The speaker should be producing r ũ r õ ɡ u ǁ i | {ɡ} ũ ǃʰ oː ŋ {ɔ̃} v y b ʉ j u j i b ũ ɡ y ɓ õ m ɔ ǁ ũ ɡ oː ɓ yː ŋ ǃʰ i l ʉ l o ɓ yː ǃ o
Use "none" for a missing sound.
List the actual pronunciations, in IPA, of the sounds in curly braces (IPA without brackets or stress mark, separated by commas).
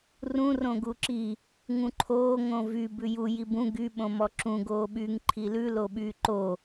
ŋ, õ